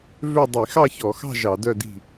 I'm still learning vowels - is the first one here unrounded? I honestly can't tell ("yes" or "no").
no